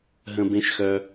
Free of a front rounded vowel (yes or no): no